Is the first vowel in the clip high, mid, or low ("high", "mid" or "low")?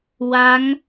low